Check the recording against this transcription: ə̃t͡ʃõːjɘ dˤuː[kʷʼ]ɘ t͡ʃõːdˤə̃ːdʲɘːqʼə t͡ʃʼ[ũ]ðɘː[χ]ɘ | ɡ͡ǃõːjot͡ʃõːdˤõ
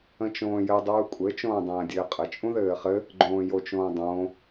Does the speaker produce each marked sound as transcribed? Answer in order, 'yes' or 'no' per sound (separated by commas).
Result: yes, yes, yes